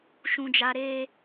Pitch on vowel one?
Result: high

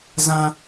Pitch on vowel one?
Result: high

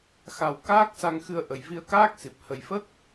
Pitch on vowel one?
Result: low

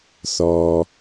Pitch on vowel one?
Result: low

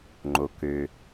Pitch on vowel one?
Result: low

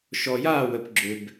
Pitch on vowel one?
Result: low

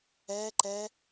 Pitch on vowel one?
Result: high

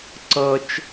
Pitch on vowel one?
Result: high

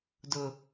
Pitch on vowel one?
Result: low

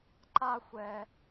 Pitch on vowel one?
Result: high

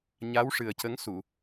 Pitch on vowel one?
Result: rising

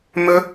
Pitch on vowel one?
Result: high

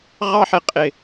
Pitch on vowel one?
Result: high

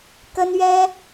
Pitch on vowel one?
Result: high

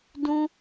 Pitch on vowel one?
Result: high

